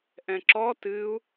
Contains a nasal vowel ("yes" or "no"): yes